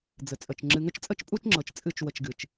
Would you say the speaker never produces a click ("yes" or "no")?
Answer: no